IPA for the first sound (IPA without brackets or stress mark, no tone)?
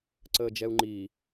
ǀ